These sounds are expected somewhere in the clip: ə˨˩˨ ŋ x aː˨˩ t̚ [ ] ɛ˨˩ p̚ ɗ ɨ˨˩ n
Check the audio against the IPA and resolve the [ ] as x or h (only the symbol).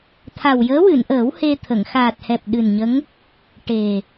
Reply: h